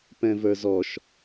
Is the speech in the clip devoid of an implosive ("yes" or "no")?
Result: yes